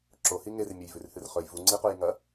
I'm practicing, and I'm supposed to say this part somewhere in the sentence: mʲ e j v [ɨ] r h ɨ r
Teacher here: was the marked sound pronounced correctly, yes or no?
no